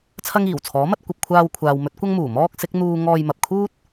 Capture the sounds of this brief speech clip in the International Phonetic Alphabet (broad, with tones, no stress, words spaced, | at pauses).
t͡sʰɐ˥ŋiː˨˩wt͡sʰɔː˨˥mɐ˥t̚ kʷɐ˨p̚kʷʰaː˧wkʷʰaː˨w mɵ˨˥t̚kʷɐ˥ŋmuː˨˩ mɔː˥k̚sɪ˨˥k̚ n̪uː˥ ŋɔː˧jmɐ˨p̚kʰuː˥t̚